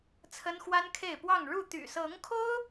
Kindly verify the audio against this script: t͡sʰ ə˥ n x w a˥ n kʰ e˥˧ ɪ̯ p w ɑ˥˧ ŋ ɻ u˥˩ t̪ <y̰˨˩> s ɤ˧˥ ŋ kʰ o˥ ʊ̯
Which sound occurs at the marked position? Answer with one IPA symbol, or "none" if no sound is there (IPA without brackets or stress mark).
y̰˨˩